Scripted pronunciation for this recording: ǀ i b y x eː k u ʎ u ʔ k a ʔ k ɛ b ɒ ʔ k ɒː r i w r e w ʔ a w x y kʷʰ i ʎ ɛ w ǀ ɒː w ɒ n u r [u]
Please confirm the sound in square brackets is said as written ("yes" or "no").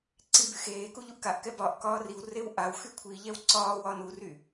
no